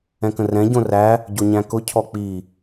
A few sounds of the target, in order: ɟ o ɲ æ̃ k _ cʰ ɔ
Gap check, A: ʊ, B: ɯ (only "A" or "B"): A